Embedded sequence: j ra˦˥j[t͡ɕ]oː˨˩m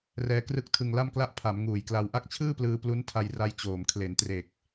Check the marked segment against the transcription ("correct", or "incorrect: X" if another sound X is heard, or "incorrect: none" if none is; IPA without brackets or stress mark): correct